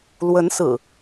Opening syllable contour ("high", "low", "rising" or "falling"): rising